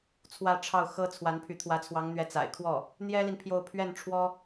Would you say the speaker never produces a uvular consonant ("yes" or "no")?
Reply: yes